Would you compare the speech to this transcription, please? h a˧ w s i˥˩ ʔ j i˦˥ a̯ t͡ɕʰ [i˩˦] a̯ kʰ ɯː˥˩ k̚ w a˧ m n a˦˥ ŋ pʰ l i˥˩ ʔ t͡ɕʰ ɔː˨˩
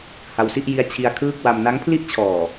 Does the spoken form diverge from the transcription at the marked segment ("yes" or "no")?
yes